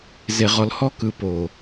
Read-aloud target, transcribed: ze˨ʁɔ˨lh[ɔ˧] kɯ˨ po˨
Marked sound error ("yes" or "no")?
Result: no